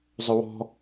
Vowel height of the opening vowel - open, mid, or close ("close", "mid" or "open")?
close